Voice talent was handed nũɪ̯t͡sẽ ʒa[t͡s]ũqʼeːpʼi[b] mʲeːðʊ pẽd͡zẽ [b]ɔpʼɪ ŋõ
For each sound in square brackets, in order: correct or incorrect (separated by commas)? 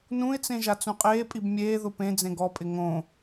correct, correct, incorrect